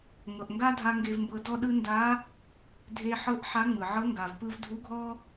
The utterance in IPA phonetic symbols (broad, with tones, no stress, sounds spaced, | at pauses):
ŋ ɤ˩ ʔ ŋ ɡ a˥ dʱ a˧ ŋ ɡ e˧ v m b ɤ˧ d ɔ˥ ɗ ɯ˥ n d a˧˥ | dʱ e˧ ħ ɤ˧˥ ʔ ħ a˧˥ ŋ͡m ɯ˩ ʕ ɤ˧˥ ŋ ɡ a˩ v p ɯ˧ v dʱ u˧˥ ɡʱ ɔ˥